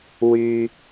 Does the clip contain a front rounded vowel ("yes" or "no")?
yes